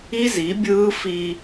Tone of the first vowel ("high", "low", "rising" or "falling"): high